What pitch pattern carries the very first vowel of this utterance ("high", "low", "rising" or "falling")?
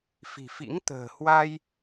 low